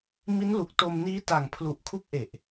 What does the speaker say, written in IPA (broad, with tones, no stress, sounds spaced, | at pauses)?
m i˦˥ n l u˨˩ k̚ t o˧ m n iː˦˥ t a˨˩ ŋ pʰ l u˨˩ ʔ kʰ u˦˥ k̚ ʔ e˨˩ ʔ